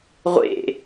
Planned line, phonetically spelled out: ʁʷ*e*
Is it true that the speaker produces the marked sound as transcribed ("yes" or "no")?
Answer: no